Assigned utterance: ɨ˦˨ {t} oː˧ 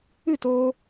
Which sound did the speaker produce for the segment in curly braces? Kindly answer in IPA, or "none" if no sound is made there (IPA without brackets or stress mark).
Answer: t